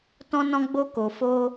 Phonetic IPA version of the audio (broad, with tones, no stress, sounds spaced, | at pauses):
t ɔ̃˧ n ɔ̃˧ ɡ͡b o˧ k o˨ f o˧